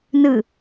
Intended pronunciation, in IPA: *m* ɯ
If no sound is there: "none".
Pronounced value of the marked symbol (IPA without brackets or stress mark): n